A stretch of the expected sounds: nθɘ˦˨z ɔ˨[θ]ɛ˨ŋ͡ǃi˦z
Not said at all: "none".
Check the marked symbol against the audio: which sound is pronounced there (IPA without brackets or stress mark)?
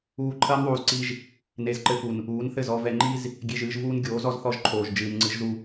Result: v